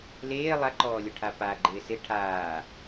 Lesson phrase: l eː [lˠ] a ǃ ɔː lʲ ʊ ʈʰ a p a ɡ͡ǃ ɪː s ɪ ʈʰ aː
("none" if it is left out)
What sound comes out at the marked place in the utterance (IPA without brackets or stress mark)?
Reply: lˠ